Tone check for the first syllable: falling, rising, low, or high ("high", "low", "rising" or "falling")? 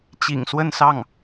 low